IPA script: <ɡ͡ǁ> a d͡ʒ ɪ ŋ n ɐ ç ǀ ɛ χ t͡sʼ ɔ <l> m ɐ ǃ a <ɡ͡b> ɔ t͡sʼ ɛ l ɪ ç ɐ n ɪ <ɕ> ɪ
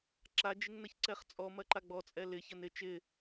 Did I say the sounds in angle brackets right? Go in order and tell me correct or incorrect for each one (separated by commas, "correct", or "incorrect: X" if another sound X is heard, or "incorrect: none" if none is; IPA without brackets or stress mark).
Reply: incorrect: ǁ, incorrect: none, correct, incorrect: t͡ʃ